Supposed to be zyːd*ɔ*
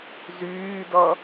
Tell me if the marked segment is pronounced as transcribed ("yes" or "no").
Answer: no